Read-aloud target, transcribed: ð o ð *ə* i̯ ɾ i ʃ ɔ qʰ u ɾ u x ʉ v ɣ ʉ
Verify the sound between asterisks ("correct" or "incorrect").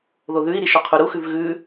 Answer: incorrect